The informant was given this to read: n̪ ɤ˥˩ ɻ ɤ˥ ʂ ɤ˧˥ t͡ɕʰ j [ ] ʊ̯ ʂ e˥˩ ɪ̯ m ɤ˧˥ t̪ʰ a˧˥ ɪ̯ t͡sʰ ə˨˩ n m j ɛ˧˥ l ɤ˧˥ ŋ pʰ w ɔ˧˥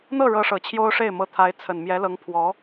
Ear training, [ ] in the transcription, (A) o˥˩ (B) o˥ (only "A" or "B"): B